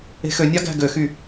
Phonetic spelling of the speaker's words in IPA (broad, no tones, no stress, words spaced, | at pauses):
e̤xønʲɑ ɡæ̤ɡøxy